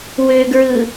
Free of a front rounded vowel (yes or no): no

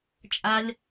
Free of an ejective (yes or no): no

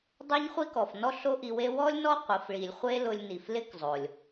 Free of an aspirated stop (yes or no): yes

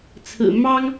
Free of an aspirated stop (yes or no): no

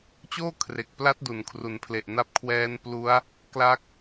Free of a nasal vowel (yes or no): yes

